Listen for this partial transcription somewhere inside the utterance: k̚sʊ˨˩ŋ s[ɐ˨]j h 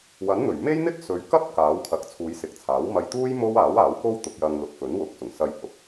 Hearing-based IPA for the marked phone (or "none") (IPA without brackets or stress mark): ɐ˧